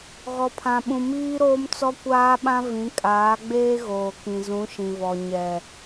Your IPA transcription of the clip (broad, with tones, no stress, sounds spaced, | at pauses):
ɣ ɔ˨ pʰ ã˨ ɓ ũ˨ m iː˦ ɾ oː˦ m t͡s ɔ˦ kʷ aː˦ ɓ ã˦ v ĩ˨˦ kʼ aː˨˦ ɡ͡b eː˦ ɣ oː˨ k ĩ˨ z ũ˨˦ ʃ ĩ˨ v ɔ˨ ɲ ɛ˨